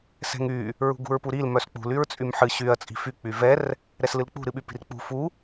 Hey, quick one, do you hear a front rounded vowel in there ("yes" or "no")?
yes